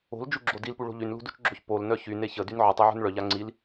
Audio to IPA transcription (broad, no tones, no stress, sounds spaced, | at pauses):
o̤ l d͡ʒ u ɡ͡ǁ o d i l p u ɭ o̤ ʎ y n l ṳ d u t͡ʃ ɡ͡ǁ o ç p o l n œ ç y n e ç ə d y n ʕ ə tˤ e ʕ ṳ n ɭ œ ʎ a ŋ͡ǀ i l